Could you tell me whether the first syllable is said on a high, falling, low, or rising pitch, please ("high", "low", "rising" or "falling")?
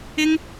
high